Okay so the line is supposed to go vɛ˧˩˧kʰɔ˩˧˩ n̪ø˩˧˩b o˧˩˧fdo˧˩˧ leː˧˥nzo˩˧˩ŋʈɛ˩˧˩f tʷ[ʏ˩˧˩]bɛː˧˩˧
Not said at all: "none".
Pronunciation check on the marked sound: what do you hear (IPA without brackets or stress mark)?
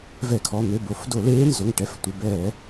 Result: ə˩˧˩